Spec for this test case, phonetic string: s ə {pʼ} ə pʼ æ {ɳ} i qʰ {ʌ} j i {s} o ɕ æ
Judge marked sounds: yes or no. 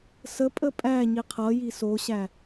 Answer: yes, no, yes, yes

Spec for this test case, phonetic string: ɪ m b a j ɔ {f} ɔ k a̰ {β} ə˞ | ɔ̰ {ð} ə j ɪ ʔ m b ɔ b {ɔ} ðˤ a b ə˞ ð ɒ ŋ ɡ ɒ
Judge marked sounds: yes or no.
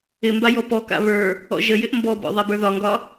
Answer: no, yes, no, no

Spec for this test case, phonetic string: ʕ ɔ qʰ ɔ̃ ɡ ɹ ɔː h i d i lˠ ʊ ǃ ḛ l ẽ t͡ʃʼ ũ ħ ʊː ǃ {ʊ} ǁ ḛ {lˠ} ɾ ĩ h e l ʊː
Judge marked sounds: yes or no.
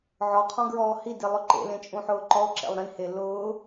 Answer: no, yes

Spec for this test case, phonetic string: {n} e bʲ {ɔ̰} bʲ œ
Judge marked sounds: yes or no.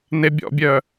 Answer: yes, yes

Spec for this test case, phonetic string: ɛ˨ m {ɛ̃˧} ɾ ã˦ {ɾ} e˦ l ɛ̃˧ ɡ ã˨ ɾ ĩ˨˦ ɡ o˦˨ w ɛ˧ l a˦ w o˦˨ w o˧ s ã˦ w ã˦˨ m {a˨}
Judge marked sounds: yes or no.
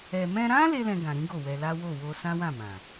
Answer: yes, no, no

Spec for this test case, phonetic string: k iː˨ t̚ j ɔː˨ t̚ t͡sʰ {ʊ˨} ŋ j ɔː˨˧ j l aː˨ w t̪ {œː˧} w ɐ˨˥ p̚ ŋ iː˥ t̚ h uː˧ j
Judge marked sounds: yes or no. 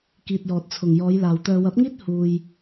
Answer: yes, yes

